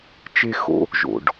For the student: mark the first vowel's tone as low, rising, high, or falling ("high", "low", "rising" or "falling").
high